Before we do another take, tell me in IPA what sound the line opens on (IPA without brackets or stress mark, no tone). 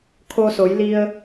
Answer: kʰ